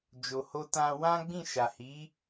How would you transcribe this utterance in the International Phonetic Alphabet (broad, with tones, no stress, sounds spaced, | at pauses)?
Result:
d͡ʒ o˨ h o˧ t ã˧ w ã˦ ɡ͡b ĩ˦˨ ʃ a˨ h i˨˦